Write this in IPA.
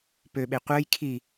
p ø ɓ e qʷ əː j kʰ i

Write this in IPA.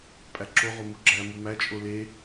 pʼ æ ǁ o ʁ o m u ɡ͡ǁ æ m u m æ t͡ʃʼ o l e

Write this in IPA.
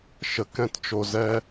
ʃ ə˨ k ɛ̃˧ t t͡ʃ o˨ z ɛ˦

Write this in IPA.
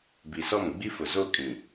b i˨ s ɔ˦˨ m ɡ͡b i˦ f ʊ˨ z o˦˨ kʼ ĩ˨

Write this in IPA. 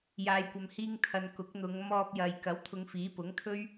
j aː˨ j kʷ ɐ˨ m h iː˧ ŋ t̪ʰ ɐ˨ n k ʊ˨˥ k̚ n̪ ʊ˨˧ ŋ m ɔː˧ p̚ j ɐ˨ j k ɐ˨˥ w t̪ʰ ʊ˨˧ ŋ f iː˨˥ p ʊ˨˥ ŋ t̪ʰ ɵ˥ ɥ

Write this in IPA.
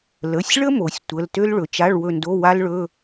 l ə˩˧˩ sʲ ɭ ə˥ m o˩˧ sʲ tʷ ə˧˥˧ l t ø˥ l ɭ ɵ˩˧ t͡ʃ a˧˥˧ ɭ w ɵ˦˨ n d o˧˥˧ w a˥ l ɭ ɵ˧˥˧

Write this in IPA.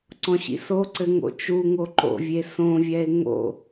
ǀ ɔ̃ ɕ ḭ s o ǀ ɘ ŋ o̰ t͡ʃ u ŋ o ǃ o̰ vʲ e s õ vʲ ɛ e̯ ŋ o̰

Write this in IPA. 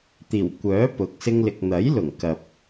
t̪ iː˨˩ w kʷ œː˨˥ p ʊ˨˥ k̚ s ɪ˥ ŋ l ɪ˧ k̚ n̪ ɐ˨˥ j l ʊ˨˩ ŋ k ɐ˨ p̚

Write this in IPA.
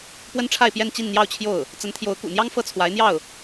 p w ə˥ n ʈ͡ʂʰ a˥˧ ɪ̯ p j ɛ˥˧ n t͡ɕ i˥˧ n n̪ j ɑ˥˧ ʊ̯ t͡ɕʰ j o˥˩ ʊ̯ | t͡s ə˧˥ n t̪ʰ j o˧˥ ʊ̯ k ṵ˨˩ n̪ j ɑ˥ ŋ f ɤ˥ t͡sʰ w a˧˥ ɪ̯ n̪ j ɑ˥˩ ʊ̯

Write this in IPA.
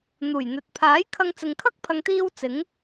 n̪ uː˨˩ j n̪ ɵ˨ t̚ pʰ aː˨˥ j kʰ ɐ˧ ŋ t͡s ɪ˨ ŋ kʰ ɐ˥ k̚ pʰ ɐ˨ ŋ t̪ iː˧ w t͡s ɪ˨˥ ŋ

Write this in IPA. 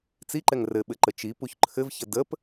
t͡s i ǃ ɛ ŋ r ɘ ɓ ɘ ǃ ə t͡ʃ i p u ç ǃʰ ɘ v ç ə d ə p

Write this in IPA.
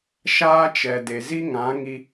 ʃ aː˦ t͡ʃ ɛ˨ d e˨ z i˦ ŋ ã˨˦ ŋ i˧

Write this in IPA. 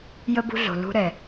j ə˦ b ṳ˦ ɮ o̤˨ l ṳ˧ ɾ ɛ˨

